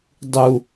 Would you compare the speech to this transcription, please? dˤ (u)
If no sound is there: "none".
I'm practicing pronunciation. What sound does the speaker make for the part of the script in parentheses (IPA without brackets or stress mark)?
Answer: u